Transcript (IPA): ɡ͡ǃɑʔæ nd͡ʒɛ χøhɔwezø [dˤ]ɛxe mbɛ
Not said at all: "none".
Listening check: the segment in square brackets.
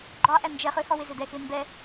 d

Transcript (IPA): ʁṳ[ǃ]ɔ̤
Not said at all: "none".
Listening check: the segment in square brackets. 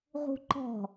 ǃ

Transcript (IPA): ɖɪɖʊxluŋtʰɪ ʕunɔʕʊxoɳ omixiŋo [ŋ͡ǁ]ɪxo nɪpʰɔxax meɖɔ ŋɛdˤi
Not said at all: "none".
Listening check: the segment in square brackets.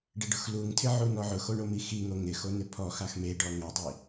ŋ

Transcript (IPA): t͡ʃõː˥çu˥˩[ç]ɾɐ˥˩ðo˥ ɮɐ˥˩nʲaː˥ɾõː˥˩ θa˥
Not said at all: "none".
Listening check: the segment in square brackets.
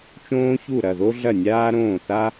none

